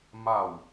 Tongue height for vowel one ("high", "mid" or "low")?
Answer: low